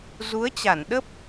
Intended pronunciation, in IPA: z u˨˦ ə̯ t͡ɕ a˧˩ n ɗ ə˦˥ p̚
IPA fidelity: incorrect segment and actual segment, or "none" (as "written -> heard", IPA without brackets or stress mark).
none